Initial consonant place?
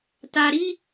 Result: alveolar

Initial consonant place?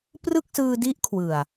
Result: labial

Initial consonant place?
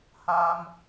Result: glottal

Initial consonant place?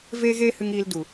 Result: labial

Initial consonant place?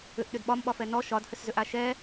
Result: glottal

